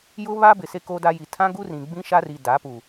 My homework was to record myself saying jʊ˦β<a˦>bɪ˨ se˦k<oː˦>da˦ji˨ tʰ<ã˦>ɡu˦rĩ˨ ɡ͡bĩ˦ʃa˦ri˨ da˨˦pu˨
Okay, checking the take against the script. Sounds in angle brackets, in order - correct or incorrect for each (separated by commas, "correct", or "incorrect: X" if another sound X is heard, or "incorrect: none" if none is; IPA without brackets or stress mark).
correct, correct, correct